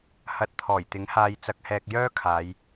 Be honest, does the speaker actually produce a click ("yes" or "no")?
no